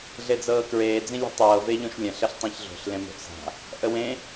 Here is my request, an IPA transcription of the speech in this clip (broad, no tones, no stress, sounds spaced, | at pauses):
ɮ e d͡z ɤː k ɹ eː d͡z ĩ lʲ e̤ tˤ ɤː v e ʎ õ ʃ lʲ ə̃ ɬ ə ɬ tˤ ẽ ç ɮ o̤ ɬ l ẽ m o̤ ʔ s a̤ | ʔ ə w ẽ